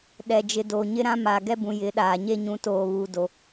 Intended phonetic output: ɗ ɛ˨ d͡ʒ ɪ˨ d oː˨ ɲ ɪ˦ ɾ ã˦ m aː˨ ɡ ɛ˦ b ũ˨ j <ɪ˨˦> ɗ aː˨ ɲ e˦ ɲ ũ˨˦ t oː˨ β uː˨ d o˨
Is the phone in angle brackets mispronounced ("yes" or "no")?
no